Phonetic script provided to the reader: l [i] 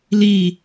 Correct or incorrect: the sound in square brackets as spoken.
correct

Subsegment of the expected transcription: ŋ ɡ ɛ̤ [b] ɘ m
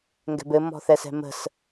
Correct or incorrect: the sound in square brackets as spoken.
correct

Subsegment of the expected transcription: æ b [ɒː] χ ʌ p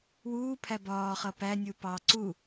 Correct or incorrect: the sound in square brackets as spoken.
correct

